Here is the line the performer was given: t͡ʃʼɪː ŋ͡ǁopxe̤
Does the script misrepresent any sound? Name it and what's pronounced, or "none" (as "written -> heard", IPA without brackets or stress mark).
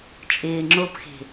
none